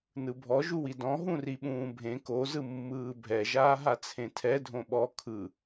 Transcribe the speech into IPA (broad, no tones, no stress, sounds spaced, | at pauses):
n ɯ bʱ ɔ ʒ u w i d ɔ̃ ɦ ũ r i ɓ ũː bʱ ẽ k o z ɯ mː ɯː bʱ ɛ ʒ aː ɦ a t͡sʰ ẽ tʰ ɛ dʱ õ ɓ ɔ kʰ ɯ